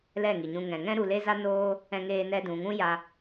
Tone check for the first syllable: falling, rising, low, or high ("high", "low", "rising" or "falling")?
falling